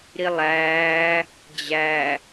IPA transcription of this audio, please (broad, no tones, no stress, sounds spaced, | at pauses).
ɾ i lˠ æː | d͡ʑ æ